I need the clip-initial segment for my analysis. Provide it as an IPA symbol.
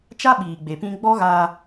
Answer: t͡ʃ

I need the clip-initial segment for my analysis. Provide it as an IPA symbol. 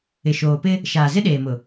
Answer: ɪ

